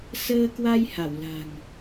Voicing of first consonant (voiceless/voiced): voiceless